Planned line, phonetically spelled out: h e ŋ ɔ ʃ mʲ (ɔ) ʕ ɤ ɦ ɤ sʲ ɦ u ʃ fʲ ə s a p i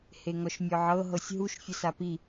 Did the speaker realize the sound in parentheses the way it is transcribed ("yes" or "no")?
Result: yes